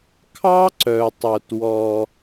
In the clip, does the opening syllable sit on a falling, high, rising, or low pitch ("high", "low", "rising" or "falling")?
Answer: high